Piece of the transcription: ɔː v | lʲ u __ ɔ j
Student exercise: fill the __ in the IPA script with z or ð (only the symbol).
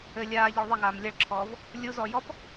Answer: z